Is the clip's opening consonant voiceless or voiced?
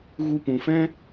voiced